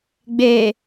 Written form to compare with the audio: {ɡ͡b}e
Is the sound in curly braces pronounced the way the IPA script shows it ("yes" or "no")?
yes